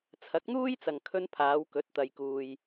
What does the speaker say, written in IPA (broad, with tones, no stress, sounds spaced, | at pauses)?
t͡sʰ ɐ˨˥ k̚ n̪ uː˥ j t͡s ɐ˨ ŋ kʰ ɵ˧ n pʰ aː˨˧ w k ɵ˨˥ t̚ t̪ ɐ˨ j k uː˨ j